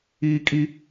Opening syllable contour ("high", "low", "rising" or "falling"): high